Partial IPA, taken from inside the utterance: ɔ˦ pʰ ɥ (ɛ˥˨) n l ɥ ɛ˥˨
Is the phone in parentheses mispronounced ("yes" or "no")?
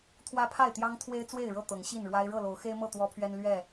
yes